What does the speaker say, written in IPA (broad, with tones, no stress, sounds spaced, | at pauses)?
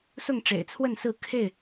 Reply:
s ʊ˥˨ ŋ ʈ͡ʂ ḛ˨˩ ɪ̯ t͡sʰ w ə˥˨ n s ɹ̩˥˨ kʰ e˥˨ ɪ̯